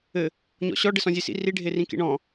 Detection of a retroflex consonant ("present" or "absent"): present